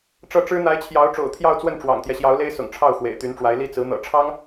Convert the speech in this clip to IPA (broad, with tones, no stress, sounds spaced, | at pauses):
ʈ͡ʂ ɤ˥˩ ʈ͡ʂ ɻ̩˥ n̪ a˧˥ ɪ̯ t͡ɕʰ j ɑ˧˥ ʊ̯ ʈ͡ʂ o̰˨˩ ʊ̯ t̪ʰ j ɑ˥˧ ʊ̯ t͡s w ə˥˩ n ʈ͡ʂ w ɑ̰˨˩ ŋ t̪ j ɛ˦ ɕ j ɑ˧˥ ʊ̯ l e˥ ɪ̯ s ʊ̰˨˩ ŋ ʈ͡ʂʰ ɑ˥˩ ʊ̯ x w ḛ˨˩ ɪ̯ t̪ y˧˥ n ʈ͡ʂ w a˧˥ ɪ̯ l i˥ t͡s ɹ̩˧˥ n̪ ɤ̰˨˩ ʈ͡ʂʰ ɑ˥ ŋ